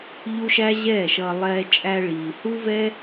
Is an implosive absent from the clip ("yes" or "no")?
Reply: yes